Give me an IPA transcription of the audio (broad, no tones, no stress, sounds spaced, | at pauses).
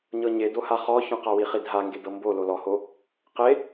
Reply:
ɲ ɤ ɲ e d o h a χ ɔ ç ɔ̃ q a w i χ i dʱ a ŋ ɡ e d ɤ m b o l o l ɔ h o | q e